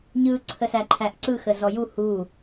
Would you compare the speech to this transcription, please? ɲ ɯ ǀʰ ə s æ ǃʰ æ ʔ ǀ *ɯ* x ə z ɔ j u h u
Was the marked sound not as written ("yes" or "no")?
no